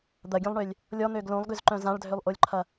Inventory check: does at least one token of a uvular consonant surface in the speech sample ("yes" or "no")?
no